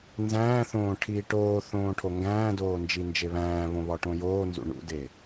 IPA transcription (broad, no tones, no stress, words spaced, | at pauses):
nzæ̃ːθõː ʈʰiːʈoːθõː ʈʰoŋɡæ̃ːdoː nd͡ʒind͡ʒeβæ̃ːβõ βɒʈõjoːnzṵ ɳṵde